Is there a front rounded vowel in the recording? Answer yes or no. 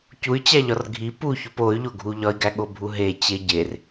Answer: yes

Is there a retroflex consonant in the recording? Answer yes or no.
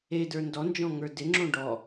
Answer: yes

